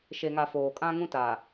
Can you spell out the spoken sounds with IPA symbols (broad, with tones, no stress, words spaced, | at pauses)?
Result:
ʃe˨ŋa˨ foː˨kʼã˦ŋũ˦taː˨